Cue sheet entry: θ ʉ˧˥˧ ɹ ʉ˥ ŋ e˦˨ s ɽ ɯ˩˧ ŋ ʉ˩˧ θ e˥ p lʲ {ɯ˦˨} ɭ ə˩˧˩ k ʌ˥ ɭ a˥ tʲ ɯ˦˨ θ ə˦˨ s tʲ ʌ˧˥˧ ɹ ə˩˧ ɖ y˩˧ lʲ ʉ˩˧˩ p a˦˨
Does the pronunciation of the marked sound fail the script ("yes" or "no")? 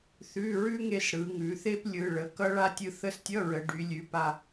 yes